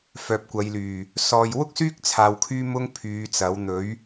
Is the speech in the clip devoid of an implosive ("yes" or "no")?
yes